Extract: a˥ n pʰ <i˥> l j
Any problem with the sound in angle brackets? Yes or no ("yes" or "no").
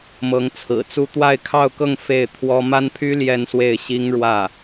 yes